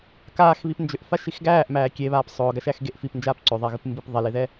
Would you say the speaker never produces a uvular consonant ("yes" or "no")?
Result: yes